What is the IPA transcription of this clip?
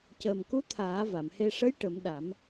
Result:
cəː˨˩mku˧˥ t̪ʰaː˨˩˦va˨˩˨mhe˧ ʂə˧˥j ʈə˨˩˦mɗa˨˩˦m

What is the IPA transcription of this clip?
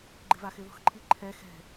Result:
ɡ͡ǃɪvaxɪðɔ̤x ǃʰiǃʰɛ xɛ̤

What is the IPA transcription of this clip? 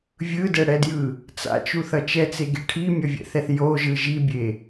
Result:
vʲɯdɛɽɛdjɯ | t͡sa̰t͡ʃuθʌ t͡ʃɛt͡seɡe ʈʰimʲʌvʲɛ̰θɛθ joʒɯ ʒibʲe

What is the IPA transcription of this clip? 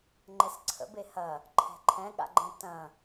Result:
ŋ͡ǃɛsǀʰə̰be hɐ | ǃʰɛ̤ǃʰɛ̃ɠa̰ɡ͡ǃɛ̃ tɐ̃

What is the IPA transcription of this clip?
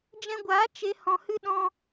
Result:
d͡ʒɛ̃˧ɡʷaː˨˦ t͡ʃe˧ hɔ̃˧hɨ˦ ɗɔ̃˧

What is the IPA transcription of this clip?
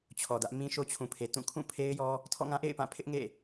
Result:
t͡ɕʰɔ˨dä˦ʔ mĩ˦ʃo˦t͡ɕʰũ˨pʰe˨ tũ˦˨kʰũ˦˨pʰe˦ɪ̯jɔ˦ | tʰɔ̰˦˨ŋã˦ʔḛ˦˨ɪ̯pã˦˨ pʰɪ˦ʔŋḛ˦˨

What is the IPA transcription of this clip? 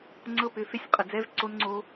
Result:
ŋ͡ǀɤ˦pʏ˨˦fe˦sʲ qʼə˨ d͡zɛ˦vǀo˦n ŋ͡ǀo˦

